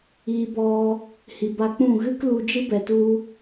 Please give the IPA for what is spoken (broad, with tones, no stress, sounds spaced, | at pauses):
iː˧ b ɔ˧ | h i˨ b a˧ k͡p ũ˦˨ ɣ ɨ˦ k l u˧ d͡ʒ ɨ˦ b ɛ˨ t u˧